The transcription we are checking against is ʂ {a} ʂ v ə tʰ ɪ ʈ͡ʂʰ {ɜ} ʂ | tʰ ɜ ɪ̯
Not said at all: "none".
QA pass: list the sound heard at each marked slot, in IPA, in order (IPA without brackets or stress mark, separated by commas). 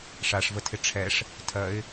a, ɛ